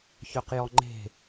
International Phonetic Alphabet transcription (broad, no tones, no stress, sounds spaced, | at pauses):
ç œ q j ɔ ŋ͡ǃ e̤